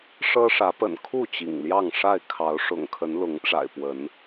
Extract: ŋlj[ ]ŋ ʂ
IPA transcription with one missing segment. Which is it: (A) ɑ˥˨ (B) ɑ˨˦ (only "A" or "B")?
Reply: A